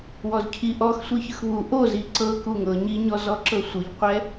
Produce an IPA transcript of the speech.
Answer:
w ɔ z cʰ i ʔ ɔ x sʷ i ç ɯ x β u ʔ o z i ǀ ɤ k u ŋ ɤ ɲ i ɲ ɔ z ɔ ǁ ɤ sʷ ɯ ʎ qʷ ɛ

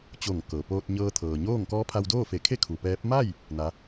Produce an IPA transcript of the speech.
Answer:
t͡ɕ o˧˩ ŋ k ɤː˩ p oː˧ t̚ ɲ ɤː˧ t̪ʰ ɤː˩ ɲ oː˥˨ ŋ k ɔː˧˥ pʰ a˧ w d oː˥˨ f e˧˩ kʰ e˥˨ kʰ u˩ p ɛː˧˥ p̚ m a˥˨ j | n a˧˥

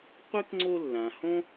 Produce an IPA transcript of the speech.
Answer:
qʷ e˥ k ŋ͡ǀ o˦ lː ã˨ h õ˥

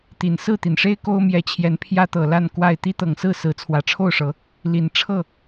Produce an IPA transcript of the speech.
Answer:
t̪ i˨˩ n s ɹ̩˥˨ t̪ i˩ n ʂ e˦ ɪ̯ k o˦ ʊ̯ m j ɛ˨˦ t͡ɕʰ j ɛ˨˦ n pʰ j ä˦ t̪ ɤ˨˩ l a˥˨ n k w a˥˨ ɪ̯ t̪ i˦ t̪ ɤ˨˩ ŋ s ɹ̩˥˨ s ɹ̩˨˦ t͡sʰ w ä˨˩ ʈ͡ʂʰ o˥˨ ʊ̯ ʂ ɤ˨˦ | l i˨˩ n ʈ͡ʂʰ ɤ˥˨

